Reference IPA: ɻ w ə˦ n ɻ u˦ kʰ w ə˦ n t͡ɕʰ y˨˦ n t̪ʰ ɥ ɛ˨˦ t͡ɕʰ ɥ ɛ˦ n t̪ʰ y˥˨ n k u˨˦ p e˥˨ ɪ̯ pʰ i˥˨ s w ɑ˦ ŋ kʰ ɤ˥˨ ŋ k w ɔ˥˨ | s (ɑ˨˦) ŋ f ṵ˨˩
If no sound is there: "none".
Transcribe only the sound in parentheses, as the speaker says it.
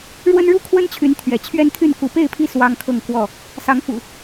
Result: ɑ˨˦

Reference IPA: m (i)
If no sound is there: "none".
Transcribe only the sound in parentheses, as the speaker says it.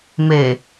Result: e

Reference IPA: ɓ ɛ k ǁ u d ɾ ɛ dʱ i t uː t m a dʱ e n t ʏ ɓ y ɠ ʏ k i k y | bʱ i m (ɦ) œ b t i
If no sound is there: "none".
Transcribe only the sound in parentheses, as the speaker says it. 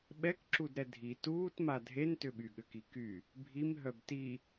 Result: ɦ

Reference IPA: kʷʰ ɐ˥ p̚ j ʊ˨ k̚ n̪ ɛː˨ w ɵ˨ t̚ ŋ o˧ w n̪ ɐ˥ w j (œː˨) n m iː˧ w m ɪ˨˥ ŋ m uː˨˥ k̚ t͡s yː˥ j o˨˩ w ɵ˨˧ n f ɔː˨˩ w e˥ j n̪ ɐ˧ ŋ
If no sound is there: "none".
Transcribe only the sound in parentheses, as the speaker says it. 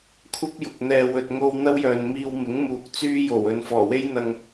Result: œː˨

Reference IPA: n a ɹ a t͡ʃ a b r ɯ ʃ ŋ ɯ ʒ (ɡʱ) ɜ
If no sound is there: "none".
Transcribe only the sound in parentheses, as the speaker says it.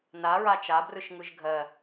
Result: ɡʱ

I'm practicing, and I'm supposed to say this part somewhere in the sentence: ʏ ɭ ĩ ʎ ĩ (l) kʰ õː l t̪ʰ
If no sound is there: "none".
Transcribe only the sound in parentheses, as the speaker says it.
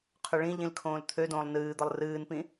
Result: l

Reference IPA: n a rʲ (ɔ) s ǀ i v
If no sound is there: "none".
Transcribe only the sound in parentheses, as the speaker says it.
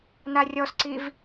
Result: ɔ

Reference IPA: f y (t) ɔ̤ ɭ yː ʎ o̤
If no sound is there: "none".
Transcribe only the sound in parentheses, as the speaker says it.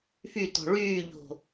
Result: t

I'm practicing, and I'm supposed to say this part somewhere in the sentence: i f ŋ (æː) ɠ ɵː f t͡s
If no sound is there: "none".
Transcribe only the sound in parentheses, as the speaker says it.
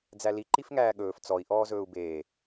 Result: æː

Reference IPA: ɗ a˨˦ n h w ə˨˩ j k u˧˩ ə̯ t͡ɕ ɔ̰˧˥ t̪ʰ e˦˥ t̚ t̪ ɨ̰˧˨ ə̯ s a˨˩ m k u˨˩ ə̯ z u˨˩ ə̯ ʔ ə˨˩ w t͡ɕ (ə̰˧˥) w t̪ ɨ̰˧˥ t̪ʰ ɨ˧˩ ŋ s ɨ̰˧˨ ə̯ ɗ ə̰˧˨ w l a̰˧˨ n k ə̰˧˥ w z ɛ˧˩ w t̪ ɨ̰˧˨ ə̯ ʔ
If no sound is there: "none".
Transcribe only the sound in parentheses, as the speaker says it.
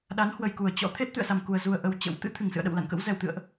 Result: ə̰˧˥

